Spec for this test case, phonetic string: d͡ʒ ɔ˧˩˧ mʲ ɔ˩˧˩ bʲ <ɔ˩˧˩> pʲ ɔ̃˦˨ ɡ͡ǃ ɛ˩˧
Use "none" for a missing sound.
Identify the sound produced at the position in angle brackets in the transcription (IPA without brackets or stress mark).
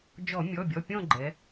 ɔ˩˧˩